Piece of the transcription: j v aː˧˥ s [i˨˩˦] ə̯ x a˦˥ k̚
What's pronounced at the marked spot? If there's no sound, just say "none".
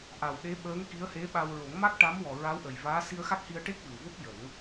i˧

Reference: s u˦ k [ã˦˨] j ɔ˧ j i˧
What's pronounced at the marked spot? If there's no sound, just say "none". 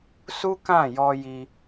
ã˦˨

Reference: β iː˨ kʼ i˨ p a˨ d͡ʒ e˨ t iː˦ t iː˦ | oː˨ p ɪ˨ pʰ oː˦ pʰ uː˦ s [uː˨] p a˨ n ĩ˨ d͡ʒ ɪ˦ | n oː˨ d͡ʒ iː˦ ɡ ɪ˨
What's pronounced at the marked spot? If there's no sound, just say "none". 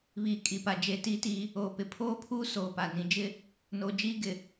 oː˨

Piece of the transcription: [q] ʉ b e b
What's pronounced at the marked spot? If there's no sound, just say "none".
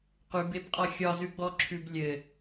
q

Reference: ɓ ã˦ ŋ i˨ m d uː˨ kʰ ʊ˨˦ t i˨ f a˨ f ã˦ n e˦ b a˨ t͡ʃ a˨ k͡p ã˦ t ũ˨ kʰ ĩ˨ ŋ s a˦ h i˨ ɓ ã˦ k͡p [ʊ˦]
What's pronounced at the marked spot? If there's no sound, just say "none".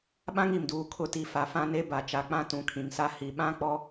ɔ˦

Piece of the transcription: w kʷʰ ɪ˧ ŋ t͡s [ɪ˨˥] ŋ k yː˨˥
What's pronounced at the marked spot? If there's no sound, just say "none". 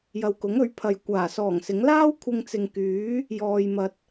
ɪ˨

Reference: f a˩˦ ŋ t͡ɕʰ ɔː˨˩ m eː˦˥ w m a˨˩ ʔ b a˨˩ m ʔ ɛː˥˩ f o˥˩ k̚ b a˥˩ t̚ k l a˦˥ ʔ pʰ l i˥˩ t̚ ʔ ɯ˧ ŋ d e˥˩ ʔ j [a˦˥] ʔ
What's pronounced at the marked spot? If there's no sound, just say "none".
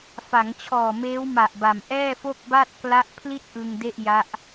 a˦˥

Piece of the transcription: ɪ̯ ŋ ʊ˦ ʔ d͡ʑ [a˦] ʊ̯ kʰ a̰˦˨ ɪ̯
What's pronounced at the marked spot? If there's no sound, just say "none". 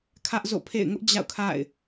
a̰˦˨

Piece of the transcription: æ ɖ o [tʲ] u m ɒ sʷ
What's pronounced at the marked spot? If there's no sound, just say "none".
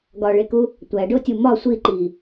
tʲ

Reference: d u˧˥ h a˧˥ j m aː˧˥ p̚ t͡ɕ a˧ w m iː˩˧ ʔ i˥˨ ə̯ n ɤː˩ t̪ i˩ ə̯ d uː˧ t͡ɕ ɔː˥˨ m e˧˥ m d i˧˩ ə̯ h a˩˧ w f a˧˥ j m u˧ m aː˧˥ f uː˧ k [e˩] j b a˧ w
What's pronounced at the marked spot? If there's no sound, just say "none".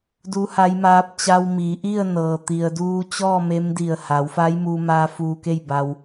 e˥˨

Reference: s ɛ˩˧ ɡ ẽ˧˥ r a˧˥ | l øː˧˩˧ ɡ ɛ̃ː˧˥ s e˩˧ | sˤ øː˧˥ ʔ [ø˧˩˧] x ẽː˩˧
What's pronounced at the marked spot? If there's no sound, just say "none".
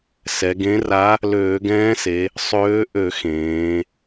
ø˧˩˧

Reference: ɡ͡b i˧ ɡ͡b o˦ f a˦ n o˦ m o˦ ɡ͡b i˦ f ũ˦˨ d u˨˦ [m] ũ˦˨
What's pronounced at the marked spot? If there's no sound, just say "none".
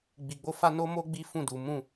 m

